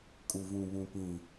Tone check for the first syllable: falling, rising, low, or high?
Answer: low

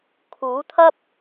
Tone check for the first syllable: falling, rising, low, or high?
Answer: rising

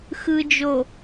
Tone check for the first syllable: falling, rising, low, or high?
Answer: low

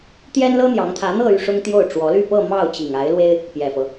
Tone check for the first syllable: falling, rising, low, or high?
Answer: high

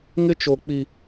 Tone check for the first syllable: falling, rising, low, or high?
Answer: high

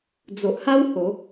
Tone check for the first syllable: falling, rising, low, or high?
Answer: low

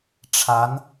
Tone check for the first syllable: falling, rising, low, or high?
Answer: rising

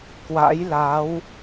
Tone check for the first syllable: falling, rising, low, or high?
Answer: rising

